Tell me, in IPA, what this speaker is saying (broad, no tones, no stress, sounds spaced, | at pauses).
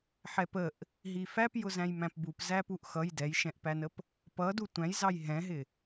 ħ ɛ p ə ʔ | ɦ i f æ p j ʊ z æ̃ j m æ̃ p b u p z æ p u ʔ x ʌ j d ɛ j ʃ ɛ̃ ʔ p æ n ə p | p ʌ d u tʷ æ̃ j z ɑ j ɦ ɛ̃ ɦ ɪ